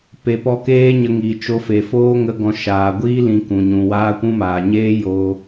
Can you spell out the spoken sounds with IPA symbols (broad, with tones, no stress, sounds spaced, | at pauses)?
p e˨ p ɔ˧ k eː˦ ɲ ə˧ ŋ iː˨ t͡ʃ o˧ f e˨ f oː˦ ŋ ə˧ ɡ ɔ̃˨ ʃ aː˨ ɡʷ iː˦ l ĩ˧ k ũ˨ ɲ ũ˨ w aː˦ kʷ ũ˦ m aː˨ ɲ eː˦ j o˧